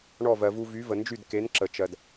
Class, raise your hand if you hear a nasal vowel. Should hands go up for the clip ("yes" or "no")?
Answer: no